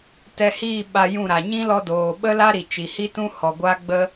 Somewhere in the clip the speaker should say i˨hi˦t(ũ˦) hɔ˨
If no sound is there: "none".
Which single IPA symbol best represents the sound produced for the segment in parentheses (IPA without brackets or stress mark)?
ũ˦